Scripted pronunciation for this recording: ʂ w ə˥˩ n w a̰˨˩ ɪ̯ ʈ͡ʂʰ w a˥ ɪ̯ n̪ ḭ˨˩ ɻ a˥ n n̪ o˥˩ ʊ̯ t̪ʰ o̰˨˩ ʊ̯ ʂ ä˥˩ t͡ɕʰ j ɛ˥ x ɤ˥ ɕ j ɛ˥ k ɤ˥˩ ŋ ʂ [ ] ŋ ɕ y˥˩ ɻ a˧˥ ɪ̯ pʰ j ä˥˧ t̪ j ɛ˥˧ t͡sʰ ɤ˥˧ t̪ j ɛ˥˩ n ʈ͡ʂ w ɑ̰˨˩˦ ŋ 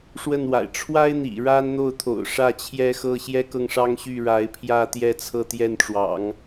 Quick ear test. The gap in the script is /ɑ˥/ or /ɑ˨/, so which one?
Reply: ɑ˥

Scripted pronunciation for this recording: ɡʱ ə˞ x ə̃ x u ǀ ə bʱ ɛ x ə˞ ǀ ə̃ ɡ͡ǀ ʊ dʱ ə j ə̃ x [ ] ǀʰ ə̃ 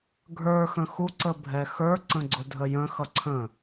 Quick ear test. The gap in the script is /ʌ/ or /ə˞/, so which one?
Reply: ʌ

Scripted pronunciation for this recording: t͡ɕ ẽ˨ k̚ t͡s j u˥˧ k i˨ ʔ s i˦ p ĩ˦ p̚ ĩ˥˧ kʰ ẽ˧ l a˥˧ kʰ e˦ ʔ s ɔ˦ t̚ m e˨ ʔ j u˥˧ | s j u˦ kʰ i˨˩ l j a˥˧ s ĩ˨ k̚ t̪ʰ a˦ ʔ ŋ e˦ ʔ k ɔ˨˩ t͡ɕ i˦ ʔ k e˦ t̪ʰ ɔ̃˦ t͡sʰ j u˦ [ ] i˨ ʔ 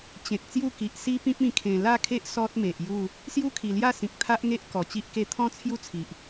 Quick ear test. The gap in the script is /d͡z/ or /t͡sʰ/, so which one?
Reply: t͡sʰ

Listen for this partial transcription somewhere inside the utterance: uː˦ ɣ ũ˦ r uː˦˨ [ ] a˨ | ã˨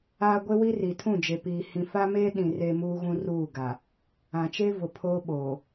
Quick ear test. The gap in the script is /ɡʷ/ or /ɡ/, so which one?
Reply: ɡ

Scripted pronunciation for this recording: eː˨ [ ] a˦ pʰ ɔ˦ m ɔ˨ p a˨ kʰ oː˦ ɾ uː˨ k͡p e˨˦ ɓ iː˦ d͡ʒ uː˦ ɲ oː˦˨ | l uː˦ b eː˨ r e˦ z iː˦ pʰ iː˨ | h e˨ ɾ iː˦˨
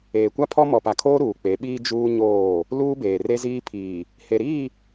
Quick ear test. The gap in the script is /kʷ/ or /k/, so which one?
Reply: kʷ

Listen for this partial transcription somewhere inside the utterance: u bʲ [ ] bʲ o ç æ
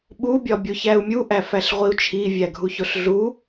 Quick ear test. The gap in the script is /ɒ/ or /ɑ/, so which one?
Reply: ɒ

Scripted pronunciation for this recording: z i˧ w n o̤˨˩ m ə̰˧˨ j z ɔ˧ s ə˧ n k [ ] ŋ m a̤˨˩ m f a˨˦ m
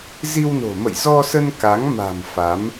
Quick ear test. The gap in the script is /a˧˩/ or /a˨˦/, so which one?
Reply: a˨˦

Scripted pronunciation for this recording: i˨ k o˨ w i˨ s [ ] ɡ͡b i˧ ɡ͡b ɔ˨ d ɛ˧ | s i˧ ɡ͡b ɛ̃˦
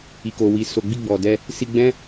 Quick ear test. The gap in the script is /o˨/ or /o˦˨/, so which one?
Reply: o˨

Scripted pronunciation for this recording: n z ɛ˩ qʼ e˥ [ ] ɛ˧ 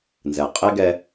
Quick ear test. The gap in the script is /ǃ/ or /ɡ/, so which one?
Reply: ɡ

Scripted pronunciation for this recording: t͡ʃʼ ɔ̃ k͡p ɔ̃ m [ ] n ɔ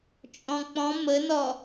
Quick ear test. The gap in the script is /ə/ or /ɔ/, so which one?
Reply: ə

